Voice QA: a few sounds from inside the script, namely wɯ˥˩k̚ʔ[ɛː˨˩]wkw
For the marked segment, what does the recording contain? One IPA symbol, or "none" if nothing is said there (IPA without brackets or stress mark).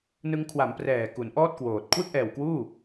ɛː˨˩